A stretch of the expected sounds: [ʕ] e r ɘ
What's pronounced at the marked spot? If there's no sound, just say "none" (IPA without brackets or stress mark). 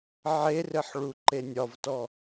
ʕ